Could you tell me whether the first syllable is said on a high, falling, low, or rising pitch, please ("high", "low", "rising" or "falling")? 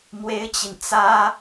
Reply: high